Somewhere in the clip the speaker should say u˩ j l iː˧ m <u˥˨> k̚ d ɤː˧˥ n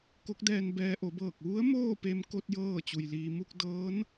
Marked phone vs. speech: correct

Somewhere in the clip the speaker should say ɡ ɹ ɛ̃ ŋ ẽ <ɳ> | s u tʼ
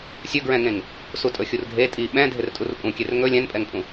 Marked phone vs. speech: incorrect: ŋ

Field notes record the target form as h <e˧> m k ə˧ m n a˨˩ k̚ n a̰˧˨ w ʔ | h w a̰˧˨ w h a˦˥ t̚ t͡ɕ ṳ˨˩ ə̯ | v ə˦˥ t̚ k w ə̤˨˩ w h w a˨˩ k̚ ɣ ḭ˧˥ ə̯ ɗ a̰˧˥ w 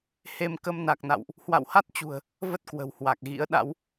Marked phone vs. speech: correct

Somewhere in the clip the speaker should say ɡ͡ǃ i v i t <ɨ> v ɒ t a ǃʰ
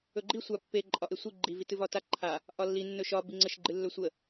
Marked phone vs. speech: correct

